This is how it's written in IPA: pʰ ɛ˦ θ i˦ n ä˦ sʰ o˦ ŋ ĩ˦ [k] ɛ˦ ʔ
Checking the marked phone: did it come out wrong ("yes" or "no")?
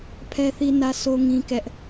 no